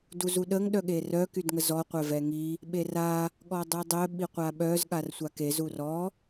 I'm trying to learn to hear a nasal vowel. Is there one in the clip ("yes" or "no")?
no